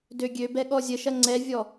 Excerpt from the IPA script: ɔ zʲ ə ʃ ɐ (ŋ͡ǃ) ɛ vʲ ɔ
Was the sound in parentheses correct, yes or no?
no